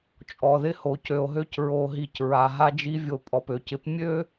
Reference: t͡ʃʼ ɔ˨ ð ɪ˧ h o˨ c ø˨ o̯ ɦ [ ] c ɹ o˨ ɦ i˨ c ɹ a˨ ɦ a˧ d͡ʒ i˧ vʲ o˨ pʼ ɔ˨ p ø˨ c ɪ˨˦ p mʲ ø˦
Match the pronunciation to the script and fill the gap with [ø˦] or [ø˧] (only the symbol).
ø˧